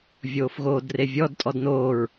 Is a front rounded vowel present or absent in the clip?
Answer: absent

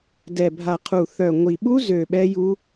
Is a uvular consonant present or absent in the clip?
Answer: present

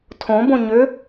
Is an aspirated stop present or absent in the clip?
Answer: present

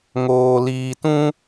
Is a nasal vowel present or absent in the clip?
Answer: present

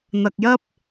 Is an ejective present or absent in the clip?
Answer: absent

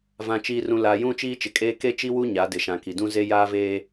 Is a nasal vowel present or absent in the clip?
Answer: present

